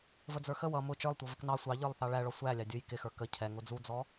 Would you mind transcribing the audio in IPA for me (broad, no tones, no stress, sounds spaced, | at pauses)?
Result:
v ə d͡z ə˞ x ə w ʌ m ʊ t͡ʃ ə˞ lˠ tʷ ʌ v ə k n ɑ sʷ ɑ ʎ ə˞ lˠ θ ɑ ɭ æ ɭ ɔ sʷ æ lʲ ɑ dʲ ʊ j k ɪ x ə˞ k ə cʰ ɛ ŋ ʊ d͡z u d͡z ɔ